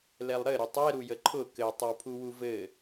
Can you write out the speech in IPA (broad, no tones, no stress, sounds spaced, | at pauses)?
l ɛ lˠ ɾ ɘ ɾ ʊ tˤ ɛ ɾ u j ə ǃʰ ʊ k ɘ tˤ ə w pʰ u w u v ɘ